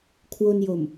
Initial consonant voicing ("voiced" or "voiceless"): voiceless